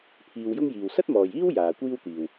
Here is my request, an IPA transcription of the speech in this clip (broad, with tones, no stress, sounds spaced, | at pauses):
pʰ iː˧ w j ʊ˥ ŋ j iː˨ w s ɐ˥ t̚ m ɔː˨ j iː˥ w j aː˨ kʷ iː˥ w t̪ iː˨ w